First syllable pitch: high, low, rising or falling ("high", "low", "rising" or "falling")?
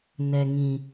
low